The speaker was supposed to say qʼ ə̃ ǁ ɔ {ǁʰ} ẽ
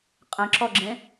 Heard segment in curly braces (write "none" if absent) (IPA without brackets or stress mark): ɡ͡ǁ